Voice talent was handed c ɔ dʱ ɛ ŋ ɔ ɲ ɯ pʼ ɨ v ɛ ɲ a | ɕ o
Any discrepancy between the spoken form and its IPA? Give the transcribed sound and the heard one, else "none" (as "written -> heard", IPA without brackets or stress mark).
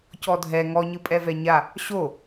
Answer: ɨ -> ɛ